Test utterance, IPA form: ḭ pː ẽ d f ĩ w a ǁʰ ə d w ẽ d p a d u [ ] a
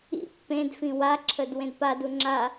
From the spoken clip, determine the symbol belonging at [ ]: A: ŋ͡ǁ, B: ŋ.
A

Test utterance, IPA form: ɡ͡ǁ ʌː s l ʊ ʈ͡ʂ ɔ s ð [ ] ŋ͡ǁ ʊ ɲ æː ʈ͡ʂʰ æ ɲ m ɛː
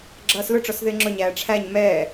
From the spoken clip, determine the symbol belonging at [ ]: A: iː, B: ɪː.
B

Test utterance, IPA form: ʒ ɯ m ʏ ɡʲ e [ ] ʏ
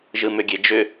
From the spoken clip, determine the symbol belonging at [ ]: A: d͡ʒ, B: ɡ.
A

